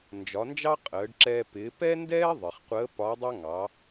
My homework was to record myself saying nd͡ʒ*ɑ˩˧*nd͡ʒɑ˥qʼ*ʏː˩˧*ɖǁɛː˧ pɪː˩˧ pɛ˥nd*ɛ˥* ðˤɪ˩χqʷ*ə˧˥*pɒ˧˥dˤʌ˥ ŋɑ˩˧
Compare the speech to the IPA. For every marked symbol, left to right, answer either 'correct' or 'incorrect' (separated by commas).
incorrect, incorrect, incorrect, incorrect